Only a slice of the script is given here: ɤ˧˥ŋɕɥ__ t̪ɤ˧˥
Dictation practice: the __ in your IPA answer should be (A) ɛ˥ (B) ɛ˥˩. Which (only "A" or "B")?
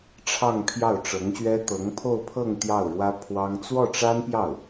A